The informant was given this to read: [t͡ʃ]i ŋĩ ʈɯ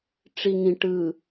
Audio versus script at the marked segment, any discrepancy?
yes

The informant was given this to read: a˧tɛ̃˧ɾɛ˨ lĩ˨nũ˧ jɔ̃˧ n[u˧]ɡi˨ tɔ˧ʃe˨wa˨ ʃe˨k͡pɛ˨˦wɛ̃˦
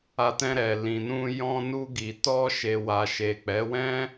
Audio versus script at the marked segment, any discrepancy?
no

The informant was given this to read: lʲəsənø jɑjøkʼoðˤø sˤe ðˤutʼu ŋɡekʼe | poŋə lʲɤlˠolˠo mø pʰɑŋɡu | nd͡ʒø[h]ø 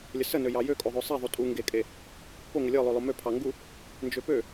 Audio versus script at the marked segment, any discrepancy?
yes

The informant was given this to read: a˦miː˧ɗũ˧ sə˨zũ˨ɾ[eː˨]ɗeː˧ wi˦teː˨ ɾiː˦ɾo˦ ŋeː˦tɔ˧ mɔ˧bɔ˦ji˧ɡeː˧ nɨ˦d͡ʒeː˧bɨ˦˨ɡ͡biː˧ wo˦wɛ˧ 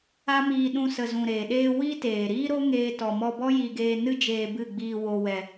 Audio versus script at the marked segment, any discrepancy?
no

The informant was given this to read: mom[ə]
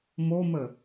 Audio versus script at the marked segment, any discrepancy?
no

